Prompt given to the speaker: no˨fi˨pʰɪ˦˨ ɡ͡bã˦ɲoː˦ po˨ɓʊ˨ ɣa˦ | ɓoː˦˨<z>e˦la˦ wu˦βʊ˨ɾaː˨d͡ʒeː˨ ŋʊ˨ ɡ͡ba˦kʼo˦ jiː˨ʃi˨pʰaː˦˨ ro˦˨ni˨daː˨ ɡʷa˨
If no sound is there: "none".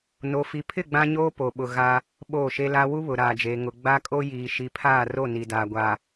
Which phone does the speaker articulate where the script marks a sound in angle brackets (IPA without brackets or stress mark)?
ʃ